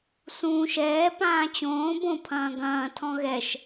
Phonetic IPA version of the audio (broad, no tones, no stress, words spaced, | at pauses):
sũːʃ ɛː pãːt͡ɕõː bõ pʰɐ̃ːɡɐ̃ː tʰɔ̃ɣɛʃ